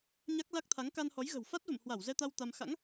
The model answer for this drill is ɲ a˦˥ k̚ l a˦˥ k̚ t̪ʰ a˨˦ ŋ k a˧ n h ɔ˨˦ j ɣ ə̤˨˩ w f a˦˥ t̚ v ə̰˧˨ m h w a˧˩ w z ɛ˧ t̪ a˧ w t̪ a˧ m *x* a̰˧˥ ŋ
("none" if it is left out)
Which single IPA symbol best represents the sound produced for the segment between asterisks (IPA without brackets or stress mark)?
x